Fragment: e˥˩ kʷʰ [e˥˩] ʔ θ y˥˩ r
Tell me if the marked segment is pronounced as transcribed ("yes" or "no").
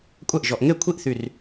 no